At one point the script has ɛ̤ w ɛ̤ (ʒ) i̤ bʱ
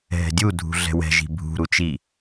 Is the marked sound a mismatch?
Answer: no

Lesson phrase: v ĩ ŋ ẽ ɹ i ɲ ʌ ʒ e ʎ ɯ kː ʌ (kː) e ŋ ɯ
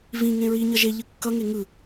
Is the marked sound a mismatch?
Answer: yes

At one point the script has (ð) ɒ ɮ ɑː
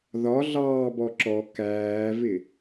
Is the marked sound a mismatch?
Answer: no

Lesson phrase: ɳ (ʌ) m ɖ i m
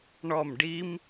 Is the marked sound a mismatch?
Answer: yes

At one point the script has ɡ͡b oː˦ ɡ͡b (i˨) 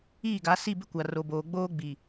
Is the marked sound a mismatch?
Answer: no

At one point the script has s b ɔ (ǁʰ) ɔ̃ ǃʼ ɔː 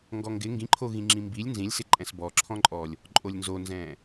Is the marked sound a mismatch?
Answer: no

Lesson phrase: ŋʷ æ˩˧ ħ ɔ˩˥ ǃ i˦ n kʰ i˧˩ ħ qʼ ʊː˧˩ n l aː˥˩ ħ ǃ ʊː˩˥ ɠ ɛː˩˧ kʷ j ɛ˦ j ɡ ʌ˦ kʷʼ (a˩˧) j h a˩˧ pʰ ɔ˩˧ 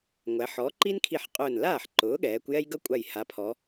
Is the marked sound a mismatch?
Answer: yes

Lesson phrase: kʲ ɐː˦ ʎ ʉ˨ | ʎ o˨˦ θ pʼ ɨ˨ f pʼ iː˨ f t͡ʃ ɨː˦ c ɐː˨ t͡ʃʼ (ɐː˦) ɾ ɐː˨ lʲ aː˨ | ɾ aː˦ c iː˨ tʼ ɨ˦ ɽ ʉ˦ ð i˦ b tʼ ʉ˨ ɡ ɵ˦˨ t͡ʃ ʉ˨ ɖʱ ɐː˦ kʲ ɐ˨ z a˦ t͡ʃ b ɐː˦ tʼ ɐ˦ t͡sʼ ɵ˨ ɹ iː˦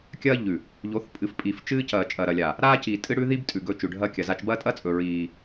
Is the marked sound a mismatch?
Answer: yes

